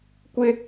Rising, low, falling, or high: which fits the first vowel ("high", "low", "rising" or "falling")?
high